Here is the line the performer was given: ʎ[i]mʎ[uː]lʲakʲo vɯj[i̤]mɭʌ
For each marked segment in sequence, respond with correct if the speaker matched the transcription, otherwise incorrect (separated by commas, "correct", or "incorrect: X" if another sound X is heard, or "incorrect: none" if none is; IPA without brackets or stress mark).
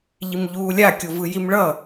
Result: correct, correct, incorrect: i